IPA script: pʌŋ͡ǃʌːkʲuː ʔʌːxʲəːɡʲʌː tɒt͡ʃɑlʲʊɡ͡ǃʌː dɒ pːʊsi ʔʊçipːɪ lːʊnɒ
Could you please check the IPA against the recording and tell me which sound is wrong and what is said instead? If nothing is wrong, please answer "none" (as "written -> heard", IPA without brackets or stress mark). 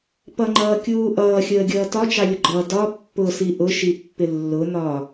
ç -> ʃ